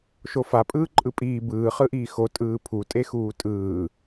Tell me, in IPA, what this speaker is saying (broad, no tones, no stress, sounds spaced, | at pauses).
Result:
ʃ o f a pʼ ɯː ǃʼ ɯ pʼ iː b ɯː χ ɯ ʔ iː x o tʼ ɯː pʰ u tʼ e x uː tʼ ɯː